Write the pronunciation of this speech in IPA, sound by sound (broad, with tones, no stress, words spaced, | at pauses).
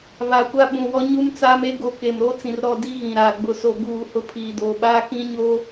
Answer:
βa˨kʷa˦ ɓũ˨wɔ˦ ɲu˦mt͡saː˦me˦ ɡo˨ke˨mɾo˦ t͡sĩ˨rɾɔ˦˨di˦ ɣĩ˨ɾaː˨ ɡ͡bʊ˨so˨ ɡuː˦˨hʊ˦ pʰiː˨doː˨ ɓaː˦kĩ˦ɲo˦